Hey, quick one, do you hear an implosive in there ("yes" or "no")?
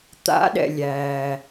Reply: yes